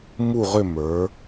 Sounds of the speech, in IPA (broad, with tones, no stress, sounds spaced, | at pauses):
m u˦˨ ʁ ʏ˦˨ m ə˞˩˧